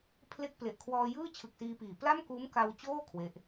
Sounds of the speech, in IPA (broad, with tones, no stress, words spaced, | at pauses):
pʰle˦˥k̚ple˨˩ʔkʰwɔː˧jɯː˥˩ t͡ɕʰɯ˨˩k̚siː˧piː˨˩ pla˥˩mkuː˦˥m ka˧wt͡ɕoː˥˩ kʰwe˦˥ʔ